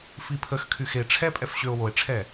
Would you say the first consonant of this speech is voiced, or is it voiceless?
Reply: voiceless